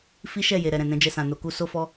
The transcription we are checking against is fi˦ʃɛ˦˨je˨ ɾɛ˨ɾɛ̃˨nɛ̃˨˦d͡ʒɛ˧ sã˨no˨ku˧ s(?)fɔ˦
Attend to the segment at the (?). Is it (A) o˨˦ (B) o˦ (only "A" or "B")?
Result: B